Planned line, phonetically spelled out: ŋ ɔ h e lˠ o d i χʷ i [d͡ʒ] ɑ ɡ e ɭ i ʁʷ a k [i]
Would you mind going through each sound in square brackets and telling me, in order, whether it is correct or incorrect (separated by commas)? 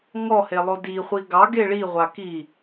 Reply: incorrect, correct